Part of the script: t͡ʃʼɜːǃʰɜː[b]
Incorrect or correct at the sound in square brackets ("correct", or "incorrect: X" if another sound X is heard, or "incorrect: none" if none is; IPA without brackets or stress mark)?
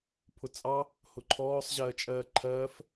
incorrect: f